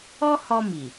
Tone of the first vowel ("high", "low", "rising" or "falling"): high